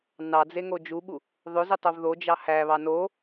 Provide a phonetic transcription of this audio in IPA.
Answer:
n ɑ d͡z e ŋ o d͡ʒ u ɓ u | ðˤ ø z i tˤ o v ð o d͡ʒ ɑ h æ β ɑ n o

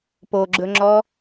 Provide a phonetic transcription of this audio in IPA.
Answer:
p o ɡ͡ǁ ɵ ŋ͡ǁ ɔ

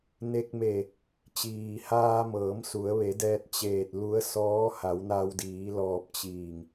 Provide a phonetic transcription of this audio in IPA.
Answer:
n e˧ k̚ m e˧˩ | t͡ɕ iː˩ h aː˧ m ɤː˩˧ m s u˩˧ ə̯ ʋ e˩˧ d ɛː˧ t̚ t͡ɕ eː˧˩ t̚ l u˧˥ ə̯ s ɔː˧˥ h a˩˧ w n a˧ w d iː˩˧ l ɔː˧˩ p̚ t͡ɕ iː˧˩ ŋ

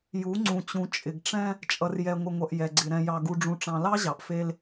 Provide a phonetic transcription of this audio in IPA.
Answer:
j u˨˦ ŋ͡ǀ ũ˨ t͡ɕ ũ˨ t͡ʃʼ ɪ˨ ɡ ʈ͡ʂ ɛ̃˦ | t͡ʃʼ ʌ˨ r j ɛ˨ ŋʷ ɪ˨ ŋʷ ʌ˨ ʔ j ɛ˨ ɡ͡ǀ ɪ˨ ɾ ɛ̃˨ j ɑ˨ ɡ u˨ ɖ͡ʐ ũ˨ ʈ͡ʂ ɑ̃˨ l ɑ˦ ʑ ɑ˨ ʔ f e˦ l

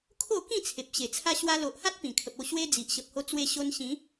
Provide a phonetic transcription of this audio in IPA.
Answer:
kʰ o˥˧ k ĩ˥˧ t͡sʰ e˨ p̚ ɕ e˨˩ t͡sʰ a˦ ɕ w a˧ l o˨ ʔ h a˦ t̚ p ĩ˨˩ kʰ ə˨ p̚ o˥˧ ɕ w e˦ d͡z i˨ ʔ ɕ ə˨ p̚ h o˧ t͡s w e˧ ɕ o˧ n ɕ ĩ˨˦

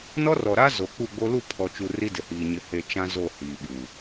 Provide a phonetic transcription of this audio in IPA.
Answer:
n ɔ˦ r ɔ˨ ɾ a˦ z o˨ k͡p u˦˨ ɡ͡b o˦ l u˦˨ pʰ ɔ˨ t͡ʃ u˨ r i˦ d ɪ˨ h iː˨ ɲ ɪ˨ h e˨ t͡ʃ ã˦ z o˦˨ h iː˨ ɓ u˨

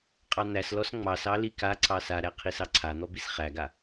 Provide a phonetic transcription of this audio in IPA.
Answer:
qʼ ɑ n̪ æ s l ɔ s ŋ͡m ɑ s ɑ l i k a ǀ ɑ s a ɾ æ qʰ i s ɑ ǀʰ a n̪ ɔ b i s χ æ ɡ a

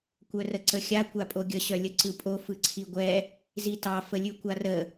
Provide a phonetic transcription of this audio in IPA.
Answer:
kʷ œ r ə ǀ ə xʲ a kʷ a pʼ o ɡʲ ə ɕ œ lʲ ə ǀ ɯ pʼ o f ɯ ǀʰ i ɡʷ ɛ | z i t ɑ f ə lʲ ʉ kʷ a r ə

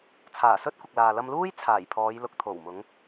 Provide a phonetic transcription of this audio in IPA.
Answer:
t͡sʰ aː˨˩ s ɵ˥ t̚ kʷ ɪ˨ k̚ l aː˨ l ɐ˧ m l uː˥ j t͡sʰ aː˨˩ j pʰ ɔː˨˧ j l ʊ˨ k̚ t̪ʰ o˨˩ w m ʊ˨˧ ŋ

